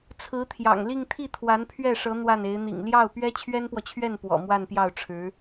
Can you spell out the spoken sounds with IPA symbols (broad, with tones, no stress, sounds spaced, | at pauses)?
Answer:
t͡sʰ ɹ̩˧˥ t̪ʰ j ɑ̰˨˩ ŋ l i˥˧ ŋ t̪ʰ i˥˩ t̪ʰ w a˧˥ n pʰ ɥ ɛ˥˩ ʂ ɤ˧˥ n̪ w a˥˩ n e˧˥ ɪ̯ n̪ ḭ˨˩ ŋ l j ɑ˥˩ ʊ̯ p ɥ ɛ˥ t͡ɕʰ ɥ ɛ˥ n p w ɔ˨ t͡ɕʰ ɥ ɛ˥˩ n p w ɔ̰˨˩ m w a˥˧ n p j ɑ˥˩ ʊ̯ ʈ͡ʂʰ ɻ̩˧˥